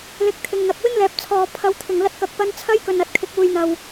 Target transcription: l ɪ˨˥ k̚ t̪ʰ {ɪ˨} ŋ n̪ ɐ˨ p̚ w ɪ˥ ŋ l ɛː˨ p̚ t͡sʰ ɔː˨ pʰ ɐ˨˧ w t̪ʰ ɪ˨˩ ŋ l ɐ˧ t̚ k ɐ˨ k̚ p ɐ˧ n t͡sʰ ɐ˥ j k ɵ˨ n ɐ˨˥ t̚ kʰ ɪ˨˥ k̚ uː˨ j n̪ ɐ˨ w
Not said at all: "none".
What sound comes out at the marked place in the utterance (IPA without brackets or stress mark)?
ɪ˨